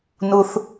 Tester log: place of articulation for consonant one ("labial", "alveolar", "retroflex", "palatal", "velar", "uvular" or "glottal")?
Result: alveolar